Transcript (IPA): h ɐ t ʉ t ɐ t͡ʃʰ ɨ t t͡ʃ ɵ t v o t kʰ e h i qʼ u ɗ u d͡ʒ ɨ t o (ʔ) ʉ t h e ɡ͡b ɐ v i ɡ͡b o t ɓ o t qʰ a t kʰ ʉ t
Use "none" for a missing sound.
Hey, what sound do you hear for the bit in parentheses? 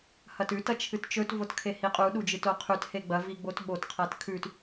qʰ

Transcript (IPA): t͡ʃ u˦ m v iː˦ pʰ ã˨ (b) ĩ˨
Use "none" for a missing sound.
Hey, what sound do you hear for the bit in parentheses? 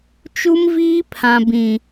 b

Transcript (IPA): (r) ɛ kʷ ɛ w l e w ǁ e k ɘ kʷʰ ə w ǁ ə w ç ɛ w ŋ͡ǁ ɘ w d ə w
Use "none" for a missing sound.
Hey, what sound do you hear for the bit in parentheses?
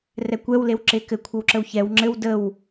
r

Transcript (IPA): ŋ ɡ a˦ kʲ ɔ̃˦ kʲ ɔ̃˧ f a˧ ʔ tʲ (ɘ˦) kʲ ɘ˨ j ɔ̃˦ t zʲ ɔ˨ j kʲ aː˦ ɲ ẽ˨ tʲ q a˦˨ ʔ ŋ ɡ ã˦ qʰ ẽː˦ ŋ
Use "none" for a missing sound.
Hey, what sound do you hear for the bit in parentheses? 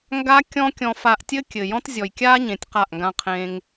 ɘ˦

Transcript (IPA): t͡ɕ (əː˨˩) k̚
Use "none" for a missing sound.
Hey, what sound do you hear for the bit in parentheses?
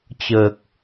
əː˨˩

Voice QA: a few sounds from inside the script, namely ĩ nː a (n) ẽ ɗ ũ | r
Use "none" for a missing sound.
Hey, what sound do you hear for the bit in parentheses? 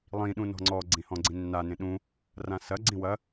n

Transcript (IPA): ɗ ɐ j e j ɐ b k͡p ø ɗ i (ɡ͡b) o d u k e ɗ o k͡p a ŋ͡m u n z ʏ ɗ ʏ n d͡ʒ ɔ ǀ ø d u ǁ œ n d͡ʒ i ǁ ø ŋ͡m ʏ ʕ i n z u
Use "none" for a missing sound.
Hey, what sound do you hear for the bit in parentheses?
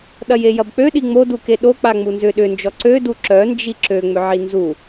ŋ͡m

